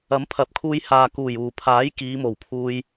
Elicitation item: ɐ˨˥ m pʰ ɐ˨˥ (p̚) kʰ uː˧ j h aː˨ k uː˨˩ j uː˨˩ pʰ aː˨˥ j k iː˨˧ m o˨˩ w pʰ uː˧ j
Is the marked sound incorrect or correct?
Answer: correct